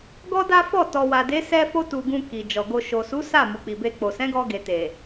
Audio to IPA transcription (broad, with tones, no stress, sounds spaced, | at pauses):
ɡ ɔ˦ d a˦ f ɔ˦˨ t ɔ˨ w a˨ d e˨˦ s ɛ˧ f o˧ t u˨ ɡ ũ˧ k i˨ d͡ʒ ɔ˨ ɡ o˧ ʃ o˨ s u˨˦ s a˦˨ m u˨ k͡p i˨ b e˧ k͡p o˨ s ɛ̃˨˦ ɡ ɔ˧ ɡ e˨ t e˨